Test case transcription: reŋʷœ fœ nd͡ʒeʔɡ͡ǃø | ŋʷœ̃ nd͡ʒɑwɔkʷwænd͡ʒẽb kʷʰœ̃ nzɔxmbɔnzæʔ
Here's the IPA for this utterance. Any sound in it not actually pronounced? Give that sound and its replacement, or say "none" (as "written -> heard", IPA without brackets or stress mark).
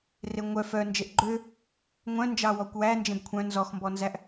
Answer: none